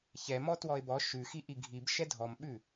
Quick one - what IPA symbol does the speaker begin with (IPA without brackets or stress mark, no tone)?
ç